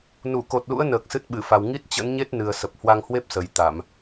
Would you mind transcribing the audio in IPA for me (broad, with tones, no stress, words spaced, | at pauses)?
nu˧˩ko˨˩t̚lṵ˧˥ə̯ nəː˨˩k̚sɨ˦˥t̚ɓɨ˧˩fa˨˩w ŋi˦˥t̚t͡ɕə̰˧˥nɲe˦˥t̚nɨ˨˩ə̯ sə˨˩p̚hwa˧ŋhwe˦˥p̚sə˨˩j t̪a˧˩˨m